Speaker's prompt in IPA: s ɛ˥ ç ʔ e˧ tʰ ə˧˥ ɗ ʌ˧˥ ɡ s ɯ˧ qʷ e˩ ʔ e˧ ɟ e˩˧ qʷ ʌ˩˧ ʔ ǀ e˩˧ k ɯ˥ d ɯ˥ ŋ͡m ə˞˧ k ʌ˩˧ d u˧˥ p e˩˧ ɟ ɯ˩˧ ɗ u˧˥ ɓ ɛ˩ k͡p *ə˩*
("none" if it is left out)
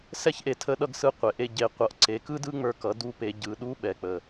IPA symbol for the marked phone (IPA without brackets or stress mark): ə˩